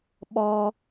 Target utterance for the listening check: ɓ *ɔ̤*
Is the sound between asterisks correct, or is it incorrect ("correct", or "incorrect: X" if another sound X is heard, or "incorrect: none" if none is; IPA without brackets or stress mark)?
incorrect: ɔ